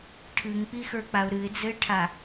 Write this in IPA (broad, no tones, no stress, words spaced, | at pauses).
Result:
ʈʰɨŋk͡pixə˞k͡paʊ̯ ɾɨɪ̯d͡zɘɪ̯ʈʰa